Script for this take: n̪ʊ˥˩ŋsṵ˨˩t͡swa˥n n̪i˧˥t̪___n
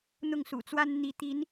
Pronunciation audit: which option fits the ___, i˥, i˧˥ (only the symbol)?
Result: i˧˥